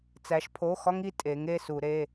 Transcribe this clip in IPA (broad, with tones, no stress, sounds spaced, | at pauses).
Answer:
t͡s æ˩˧ ʃ pʰ o˩˧˩ x ɒ˧ ŋ i˧ tʼ e˩˧ ŋ e˩˧˩ s u˧˩˧ ɾ e˩˧˩